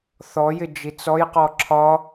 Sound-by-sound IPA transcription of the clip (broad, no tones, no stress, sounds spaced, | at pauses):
θ ɔ j ɪ d͡ʒ i t͡s ɔ j q ɔ ǁʰ ɒ